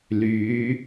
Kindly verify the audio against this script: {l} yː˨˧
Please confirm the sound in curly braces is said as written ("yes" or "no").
yes